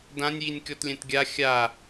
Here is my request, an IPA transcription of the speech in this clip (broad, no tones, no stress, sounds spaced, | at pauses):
d ã nʲ j i nʲ kʲ ɔ t lʲ ɛ̃ t ɡʲ a xʲ a